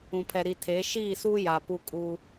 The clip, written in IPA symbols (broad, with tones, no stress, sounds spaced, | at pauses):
ũ˨ pʰ ɛ˨ ɾ i˨ tʰ e˨˦ ʃ iː˦˨ s uː˦ j a˨ p u˦ kʼ u˦